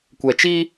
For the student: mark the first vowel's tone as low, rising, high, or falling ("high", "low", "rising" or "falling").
low